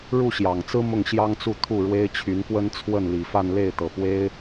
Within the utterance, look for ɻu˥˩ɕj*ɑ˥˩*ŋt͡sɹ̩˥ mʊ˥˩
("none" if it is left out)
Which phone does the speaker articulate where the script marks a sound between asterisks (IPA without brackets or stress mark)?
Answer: ɑ˨˩